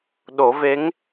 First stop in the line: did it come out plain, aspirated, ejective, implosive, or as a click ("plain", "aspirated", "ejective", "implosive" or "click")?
implosive